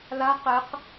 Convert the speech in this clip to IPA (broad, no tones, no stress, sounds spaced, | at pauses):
l a q e q